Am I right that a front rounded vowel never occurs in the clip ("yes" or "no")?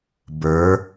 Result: yes